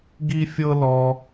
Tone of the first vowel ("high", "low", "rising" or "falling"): high